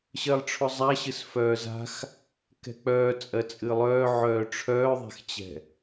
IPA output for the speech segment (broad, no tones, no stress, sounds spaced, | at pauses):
ɕ ɜ lˠ ʈ͡ʂʰ ʊ zˤ a ɕ ɨ s f œː z a̤ x | k ɛ̤ k͡p œː t͡sʼ ɜ t͡sʼ ɨ lˠ œː ʕ œː ʈ͡ʂʰ œː ðˤ ɛ̤ x t͡ɕ ɛ̤